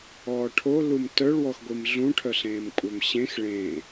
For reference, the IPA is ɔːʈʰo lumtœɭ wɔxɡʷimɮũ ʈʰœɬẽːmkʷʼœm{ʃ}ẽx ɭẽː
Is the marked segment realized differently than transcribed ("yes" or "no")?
yes